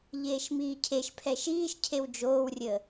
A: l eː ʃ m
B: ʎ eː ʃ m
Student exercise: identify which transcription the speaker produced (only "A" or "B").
B